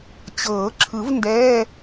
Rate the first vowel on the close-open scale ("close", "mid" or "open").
mid